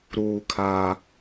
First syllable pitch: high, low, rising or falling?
high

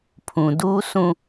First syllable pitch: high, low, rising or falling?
low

